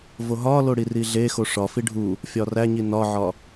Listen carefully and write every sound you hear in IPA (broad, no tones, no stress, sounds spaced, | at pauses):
v o ɦ ɒ l o ɽ i r i ɮ e x o ʂ ɒ f i ɖʱ u | fʲ ɒ r æ ɲ i n ɒ ʕ ɒ